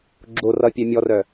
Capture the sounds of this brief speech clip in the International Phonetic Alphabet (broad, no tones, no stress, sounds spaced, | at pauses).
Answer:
ɡ͡ǁ o r ʌ pʲ œ mʲ ɔ r œ